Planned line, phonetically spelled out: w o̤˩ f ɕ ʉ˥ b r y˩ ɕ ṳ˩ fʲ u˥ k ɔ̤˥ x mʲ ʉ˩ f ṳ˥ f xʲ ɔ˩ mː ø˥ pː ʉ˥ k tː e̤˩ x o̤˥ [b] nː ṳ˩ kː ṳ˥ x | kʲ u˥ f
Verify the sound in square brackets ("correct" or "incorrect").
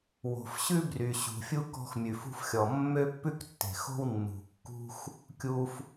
incorrect